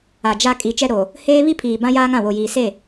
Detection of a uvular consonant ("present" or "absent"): absent